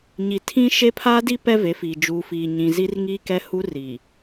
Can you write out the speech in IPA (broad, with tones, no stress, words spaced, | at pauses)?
ɲi˨tʰĩ˦ ʃe˦pʰa˦di˦ pɛ˦ve˨˦fiː˨ d͡ʒuː˨fiː˨ɲĩ˨zi˦r ŋi˦ kɛ˦hu˦ ri˨